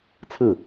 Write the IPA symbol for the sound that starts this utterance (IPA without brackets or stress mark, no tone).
t͡sʰ